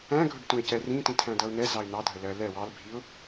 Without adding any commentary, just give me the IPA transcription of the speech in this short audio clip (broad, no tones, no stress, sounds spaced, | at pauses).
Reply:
æ̃ ɡʱ ʊ ɖ t ũ ɪ̯ c ɛ r ĩ t ĩ tʰ æ̃ d ʌ ʊ̯ n̪ ɛ z ɑ ɪ̯ n̪ ɑ dʱ ə l ɜ l ɛ w ɑ l bʱ i ʊ̯